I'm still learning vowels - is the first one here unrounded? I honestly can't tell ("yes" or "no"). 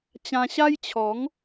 yes